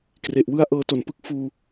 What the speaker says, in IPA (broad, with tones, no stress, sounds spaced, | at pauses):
k r e˨˩ ʔ w ɯ˥˩ a̯ ʔ ɤː˧ t o˨˩ n p ɯ˥˩ k̚ f uː˧